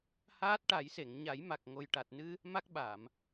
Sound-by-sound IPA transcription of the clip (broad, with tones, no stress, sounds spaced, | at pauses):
h aː˦˥ t̚ ʈ a˨˩˦ j s e˨˩˨ ŋ ɲ a˨˩˦ j m a˨˩ k̚ ŋ o˨˩ j ʈ a˨˩ t̚ n ɨ˧ | m a˦˥ k̚ ɓ a˨˩˨ m